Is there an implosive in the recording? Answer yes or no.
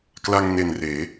no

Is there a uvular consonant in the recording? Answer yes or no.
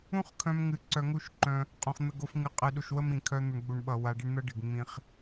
yes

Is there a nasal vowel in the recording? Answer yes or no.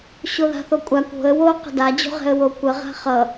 no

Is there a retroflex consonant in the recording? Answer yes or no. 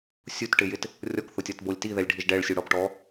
yes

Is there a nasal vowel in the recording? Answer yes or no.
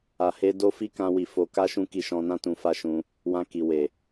yes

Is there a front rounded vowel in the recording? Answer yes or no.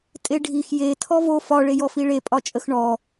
no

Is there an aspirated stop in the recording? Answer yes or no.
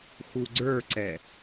no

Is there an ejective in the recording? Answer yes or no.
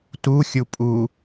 yes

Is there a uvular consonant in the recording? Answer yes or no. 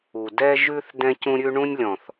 no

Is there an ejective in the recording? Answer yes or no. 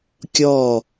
no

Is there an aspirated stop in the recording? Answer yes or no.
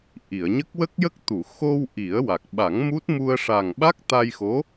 no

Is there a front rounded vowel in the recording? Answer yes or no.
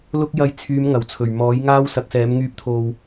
yes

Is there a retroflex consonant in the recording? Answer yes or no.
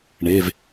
yes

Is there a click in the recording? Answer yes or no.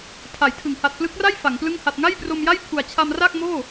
no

